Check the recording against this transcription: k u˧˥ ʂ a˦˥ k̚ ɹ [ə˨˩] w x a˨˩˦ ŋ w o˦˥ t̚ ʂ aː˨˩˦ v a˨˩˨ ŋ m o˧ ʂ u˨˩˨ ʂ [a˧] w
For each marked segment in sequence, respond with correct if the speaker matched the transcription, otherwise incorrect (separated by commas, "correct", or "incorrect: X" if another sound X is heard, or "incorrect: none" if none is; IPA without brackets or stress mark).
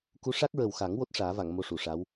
correct, incorrect: a˧˥